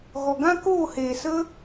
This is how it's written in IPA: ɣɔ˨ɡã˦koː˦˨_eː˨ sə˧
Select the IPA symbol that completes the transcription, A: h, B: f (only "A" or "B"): A